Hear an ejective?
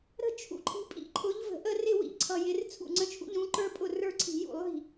yes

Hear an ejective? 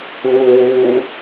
no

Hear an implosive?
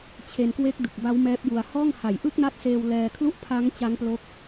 no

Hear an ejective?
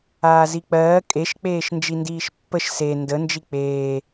yes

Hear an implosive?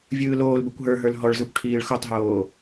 no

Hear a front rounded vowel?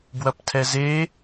no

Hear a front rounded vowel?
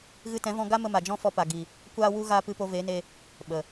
no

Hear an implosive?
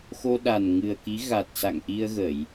yes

